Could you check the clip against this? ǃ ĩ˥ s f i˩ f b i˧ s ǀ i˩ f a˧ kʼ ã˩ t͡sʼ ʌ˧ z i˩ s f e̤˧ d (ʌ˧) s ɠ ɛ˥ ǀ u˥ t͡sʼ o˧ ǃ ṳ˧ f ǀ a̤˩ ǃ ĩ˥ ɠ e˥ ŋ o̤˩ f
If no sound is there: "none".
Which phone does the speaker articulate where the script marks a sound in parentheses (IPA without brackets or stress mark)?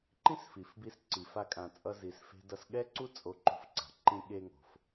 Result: ʌ˧